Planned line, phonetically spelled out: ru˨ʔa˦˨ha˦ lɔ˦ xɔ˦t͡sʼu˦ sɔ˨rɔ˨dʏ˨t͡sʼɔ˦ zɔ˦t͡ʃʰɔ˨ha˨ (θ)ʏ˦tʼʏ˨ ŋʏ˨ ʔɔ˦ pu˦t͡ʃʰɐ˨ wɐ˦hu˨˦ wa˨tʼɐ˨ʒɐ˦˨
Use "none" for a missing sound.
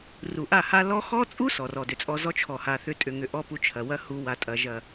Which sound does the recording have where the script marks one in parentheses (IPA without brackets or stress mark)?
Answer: θ